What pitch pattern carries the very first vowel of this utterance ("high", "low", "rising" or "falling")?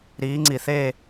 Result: rising